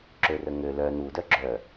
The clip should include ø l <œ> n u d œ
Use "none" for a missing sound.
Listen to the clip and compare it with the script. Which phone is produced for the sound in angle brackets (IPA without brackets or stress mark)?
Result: œ